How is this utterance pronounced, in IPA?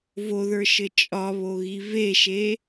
voðə˞ʃɘ t͡ʃʼɒβoɣi veʃe

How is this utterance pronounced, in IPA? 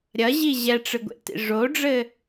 ɾʲɐʑi ʑɛʈ͡ʂɨɡʷḛtḭ ʐoɖ͡ʐɘ

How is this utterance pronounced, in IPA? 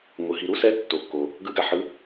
ŋʷɯ˩ ɦi˩ɾu˦ sɛ˨˥tːo˩ kːo˩ | ɡɯ˨˥ɡa˩ħɯ˨˥

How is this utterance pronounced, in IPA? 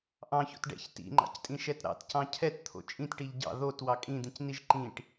ʔɑ̃ço̰t ɖɛ̰ç tḭŋ͡ǃɑ̰ctʼĩʃɛt ɾɑ̰tcɑ̃ cʰɛtt̪ʰo̰ t͡ʃʼĩtʈiʎ ɟɑ̰ ðot wɑkʼĩd̪ĩcniʒ ǃĩʈ

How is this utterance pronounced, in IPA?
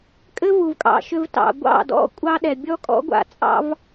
kʼɘ˦vu˨vkʼɑ̰˨ ʃʏ˧vtɑ̰˨ ɡʷɑ̰˦˨dɔ̰˦ kʷʼɑ˦ɗɛ˨ bʲɔ˦kʼɔ̰˦ɡʷa̰˧t͡sʼɑ̰˦v

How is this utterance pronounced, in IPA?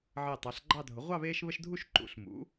ʕəː˧˩tˤɑ˩˥ɬɡ͡ǃɑ˥˨dʱʊ˩˥ ʁʷɑ˥˨βeː˦ʃβə˦ʃdʱu˥˨ʃ ǃṵ˩˥ɬmṵ˩˥

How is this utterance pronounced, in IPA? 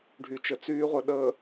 ɖʱy˨t͡ʃə˨t͡syː˦ʁʷə˨ ɗəː˨

